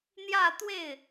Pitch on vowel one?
falling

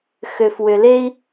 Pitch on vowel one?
low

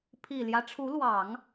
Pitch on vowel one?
low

